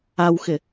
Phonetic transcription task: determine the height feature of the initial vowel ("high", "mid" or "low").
low